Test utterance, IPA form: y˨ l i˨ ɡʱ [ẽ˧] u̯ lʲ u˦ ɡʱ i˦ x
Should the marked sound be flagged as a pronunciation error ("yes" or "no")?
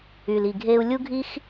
yes